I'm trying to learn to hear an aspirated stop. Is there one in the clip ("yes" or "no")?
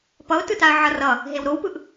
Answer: no